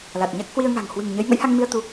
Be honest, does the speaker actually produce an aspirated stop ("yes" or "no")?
no